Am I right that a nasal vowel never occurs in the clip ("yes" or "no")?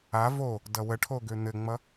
yes